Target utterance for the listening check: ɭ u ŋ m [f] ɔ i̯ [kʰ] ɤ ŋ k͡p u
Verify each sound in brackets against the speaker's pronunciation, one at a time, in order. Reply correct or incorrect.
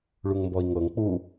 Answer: incorrect: b, incorrect: ŋ

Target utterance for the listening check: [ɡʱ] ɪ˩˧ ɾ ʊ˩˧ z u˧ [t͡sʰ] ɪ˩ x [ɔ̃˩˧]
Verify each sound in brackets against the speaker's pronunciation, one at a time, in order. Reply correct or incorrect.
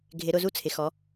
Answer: correct, correct, incorrect: ɔ˩˧

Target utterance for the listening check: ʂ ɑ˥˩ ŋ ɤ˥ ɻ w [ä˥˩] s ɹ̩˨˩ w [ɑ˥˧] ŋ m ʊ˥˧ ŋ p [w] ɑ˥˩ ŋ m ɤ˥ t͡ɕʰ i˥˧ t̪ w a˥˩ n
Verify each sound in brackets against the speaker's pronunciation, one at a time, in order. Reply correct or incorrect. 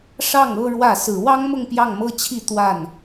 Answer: correct, incorrect: ɑ˥, incorrect: j

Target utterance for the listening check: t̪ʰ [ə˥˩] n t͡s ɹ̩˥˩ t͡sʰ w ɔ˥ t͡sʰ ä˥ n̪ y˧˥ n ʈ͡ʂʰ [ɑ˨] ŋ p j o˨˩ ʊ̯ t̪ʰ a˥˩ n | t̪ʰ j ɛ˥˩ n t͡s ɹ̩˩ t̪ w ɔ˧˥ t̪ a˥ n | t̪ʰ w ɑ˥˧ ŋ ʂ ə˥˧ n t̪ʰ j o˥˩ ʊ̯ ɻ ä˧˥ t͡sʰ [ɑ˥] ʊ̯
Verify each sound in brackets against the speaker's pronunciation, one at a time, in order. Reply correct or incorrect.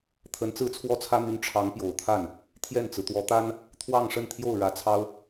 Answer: incorrect: ə˧˥, incorrect: ɑ˧˥, correct

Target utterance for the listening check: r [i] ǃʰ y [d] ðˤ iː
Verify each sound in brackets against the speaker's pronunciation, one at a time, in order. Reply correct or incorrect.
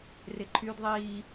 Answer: incorrect: ɪ, correct

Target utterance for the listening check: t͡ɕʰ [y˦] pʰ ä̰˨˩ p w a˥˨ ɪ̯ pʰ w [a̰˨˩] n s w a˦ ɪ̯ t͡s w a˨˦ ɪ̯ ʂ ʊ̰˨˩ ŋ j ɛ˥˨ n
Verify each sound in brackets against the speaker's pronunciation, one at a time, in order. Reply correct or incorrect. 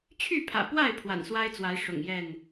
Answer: incorrect: y˥˨, correct

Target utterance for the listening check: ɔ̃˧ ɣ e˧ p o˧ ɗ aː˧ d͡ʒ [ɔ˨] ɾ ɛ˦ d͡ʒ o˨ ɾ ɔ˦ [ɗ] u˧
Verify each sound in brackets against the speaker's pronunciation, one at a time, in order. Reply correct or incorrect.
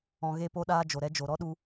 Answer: incorrect: o˨, correct

